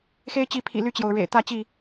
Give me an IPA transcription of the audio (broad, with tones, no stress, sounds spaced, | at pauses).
x e˦ ɪ̯ t͡ɕ i˨˦ pʰ ḭ˨˩ l y˥˨ t͡ɕ j o˩ ʊ̯ ɻ ḛ˨˩ ɪ̯ t̪ ä˥˨ t͡ɕ i˥˨